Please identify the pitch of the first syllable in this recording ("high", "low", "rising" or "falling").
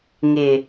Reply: low